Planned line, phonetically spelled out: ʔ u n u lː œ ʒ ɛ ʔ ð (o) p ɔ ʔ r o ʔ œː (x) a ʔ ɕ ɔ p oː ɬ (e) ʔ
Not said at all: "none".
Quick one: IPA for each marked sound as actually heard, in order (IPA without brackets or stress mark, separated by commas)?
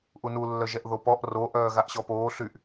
o, ɣ, y